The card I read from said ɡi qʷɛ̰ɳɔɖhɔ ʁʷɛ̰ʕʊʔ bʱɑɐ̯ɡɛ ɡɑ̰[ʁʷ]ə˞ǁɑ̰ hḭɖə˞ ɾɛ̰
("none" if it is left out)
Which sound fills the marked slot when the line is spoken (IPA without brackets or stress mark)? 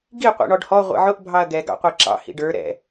qʷ